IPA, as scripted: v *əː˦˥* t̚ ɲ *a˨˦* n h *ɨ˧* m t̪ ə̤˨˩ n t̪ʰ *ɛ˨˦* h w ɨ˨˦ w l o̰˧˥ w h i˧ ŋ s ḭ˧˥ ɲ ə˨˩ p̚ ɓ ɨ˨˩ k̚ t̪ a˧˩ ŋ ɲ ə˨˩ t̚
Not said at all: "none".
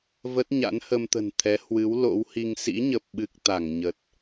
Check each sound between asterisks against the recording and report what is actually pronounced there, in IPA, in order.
ə˦˥, a̰˧˥, ə˧, ɛ˨˦

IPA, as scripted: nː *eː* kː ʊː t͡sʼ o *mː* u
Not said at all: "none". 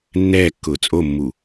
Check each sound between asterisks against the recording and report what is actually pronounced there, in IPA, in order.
ɛː, mː

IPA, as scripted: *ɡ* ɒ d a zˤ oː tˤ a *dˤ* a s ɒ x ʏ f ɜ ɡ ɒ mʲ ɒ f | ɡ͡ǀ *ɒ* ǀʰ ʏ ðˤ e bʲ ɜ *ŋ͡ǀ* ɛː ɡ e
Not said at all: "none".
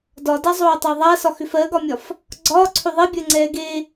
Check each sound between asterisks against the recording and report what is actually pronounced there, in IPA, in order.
d, ðˤ, ɒː, ŋ͡ǀ

